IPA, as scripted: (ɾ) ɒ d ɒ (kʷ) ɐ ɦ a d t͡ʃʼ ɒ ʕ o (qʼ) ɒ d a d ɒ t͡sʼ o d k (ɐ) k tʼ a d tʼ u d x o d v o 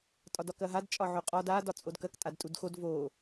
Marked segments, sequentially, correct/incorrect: incorrect, incorrect, correct, correct

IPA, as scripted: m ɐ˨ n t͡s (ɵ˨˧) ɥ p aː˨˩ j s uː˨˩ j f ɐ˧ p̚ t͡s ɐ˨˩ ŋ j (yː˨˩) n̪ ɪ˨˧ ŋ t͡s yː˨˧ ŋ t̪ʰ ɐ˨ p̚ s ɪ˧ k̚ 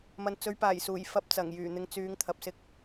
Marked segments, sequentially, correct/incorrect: correct, correct

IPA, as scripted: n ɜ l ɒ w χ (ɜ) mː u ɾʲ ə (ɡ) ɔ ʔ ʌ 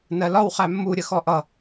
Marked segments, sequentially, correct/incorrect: incorrect, incorrect

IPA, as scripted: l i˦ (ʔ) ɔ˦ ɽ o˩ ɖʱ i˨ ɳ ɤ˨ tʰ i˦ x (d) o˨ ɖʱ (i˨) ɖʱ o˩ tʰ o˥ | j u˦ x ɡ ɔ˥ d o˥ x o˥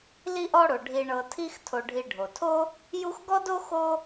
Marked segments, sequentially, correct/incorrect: correct, incorrect, correct

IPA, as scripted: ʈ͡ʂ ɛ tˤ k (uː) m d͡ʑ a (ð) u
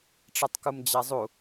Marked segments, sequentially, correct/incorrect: incorrect, incorrect

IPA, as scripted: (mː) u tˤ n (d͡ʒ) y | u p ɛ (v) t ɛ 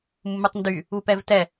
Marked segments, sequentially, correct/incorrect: correct, incorrect, correct

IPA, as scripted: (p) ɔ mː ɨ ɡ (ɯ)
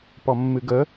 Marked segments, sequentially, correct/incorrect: correct, incorrect

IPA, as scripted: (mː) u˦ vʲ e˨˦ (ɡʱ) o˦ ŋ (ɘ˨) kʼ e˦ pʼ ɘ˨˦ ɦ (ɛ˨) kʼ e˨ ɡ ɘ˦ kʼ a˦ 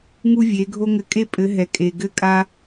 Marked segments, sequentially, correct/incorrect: incorrect, correct, incorrect, correct

